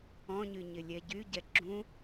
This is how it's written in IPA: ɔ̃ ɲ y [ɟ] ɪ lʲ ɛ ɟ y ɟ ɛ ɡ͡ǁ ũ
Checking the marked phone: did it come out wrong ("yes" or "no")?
yes